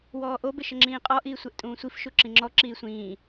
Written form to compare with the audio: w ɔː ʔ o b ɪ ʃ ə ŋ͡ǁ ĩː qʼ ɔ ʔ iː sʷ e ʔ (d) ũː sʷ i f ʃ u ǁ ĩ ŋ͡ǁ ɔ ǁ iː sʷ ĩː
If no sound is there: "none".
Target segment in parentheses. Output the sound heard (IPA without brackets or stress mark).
tʼ